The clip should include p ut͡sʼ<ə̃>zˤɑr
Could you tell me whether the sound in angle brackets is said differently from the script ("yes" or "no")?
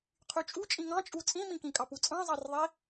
yes